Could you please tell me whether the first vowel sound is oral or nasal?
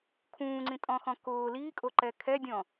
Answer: nasal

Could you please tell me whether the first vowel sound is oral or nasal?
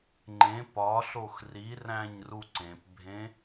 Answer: nasal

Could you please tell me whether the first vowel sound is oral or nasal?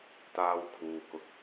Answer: oral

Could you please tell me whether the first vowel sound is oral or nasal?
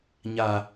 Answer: oral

